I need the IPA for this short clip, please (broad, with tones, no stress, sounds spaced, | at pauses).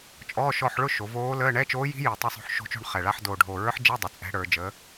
t͡ʃʼ ɔː˧˥˧ ʃ ɔ˦˨ ħ ɭ ʊ˦˨ ʃ o˩˧ v oː˧˥ l əː˧˥˧ ɳ ɛ˧˥˧ t͡ʃ oː˧˥ j i̤˧˥ j i˨˩ tˤ ə˦˨ sˤ o̤˦˨ ħ ʃ o̤˧˥ t͡ʃ o̤˦˨ ɳ χ ɛ˨˩ ɭ a˧˥˧ ħ d oː˨˩ ɖʱ oː˨˩ ɹ ə˞˧˥ ħ d͡ʒ ɛ˧˥˧ dˤ ʊ˩˧ t͡sʼ ɛ̤˧˥ ɽ ə˞˩˧ d͡ʒ əː˩˧